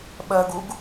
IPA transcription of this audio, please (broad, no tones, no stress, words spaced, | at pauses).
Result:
ɓɜɡuɡ